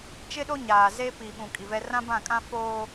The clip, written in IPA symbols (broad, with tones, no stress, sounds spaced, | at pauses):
t͡ʃ ɪ˦ ɗ o˦ ɲ aː˨ z e˦ p i˨ ɓ ũ˨ kʼ i˨ v ɛ˦ r ã˦ b ã˦˨ kʼ ã˦ f oː˦